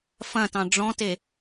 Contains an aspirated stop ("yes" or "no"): no